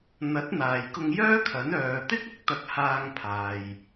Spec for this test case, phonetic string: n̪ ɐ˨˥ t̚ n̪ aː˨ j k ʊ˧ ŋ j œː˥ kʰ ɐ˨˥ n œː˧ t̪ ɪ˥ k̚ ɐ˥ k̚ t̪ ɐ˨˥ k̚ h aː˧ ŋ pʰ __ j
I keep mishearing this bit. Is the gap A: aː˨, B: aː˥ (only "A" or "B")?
A